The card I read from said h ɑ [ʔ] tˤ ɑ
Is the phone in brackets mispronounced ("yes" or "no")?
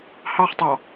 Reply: yes